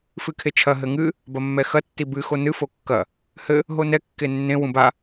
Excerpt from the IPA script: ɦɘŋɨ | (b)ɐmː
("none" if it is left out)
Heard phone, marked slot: b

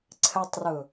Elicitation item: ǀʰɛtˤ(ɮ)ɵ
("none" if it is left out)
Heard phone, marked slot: r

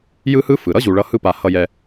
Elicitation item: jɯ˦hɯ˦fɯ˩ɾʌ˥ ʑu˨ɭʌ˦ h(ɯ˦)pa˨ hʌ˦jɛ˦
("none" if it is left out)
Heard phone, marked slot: ɯ˦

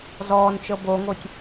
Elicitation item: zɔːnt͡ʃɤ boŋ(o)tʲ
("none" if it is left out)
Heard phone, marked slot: o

